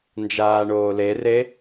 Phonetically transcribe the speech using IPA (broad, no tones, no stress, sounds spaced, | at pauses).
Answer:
n d͡ʒ aː ɳ oː l e r e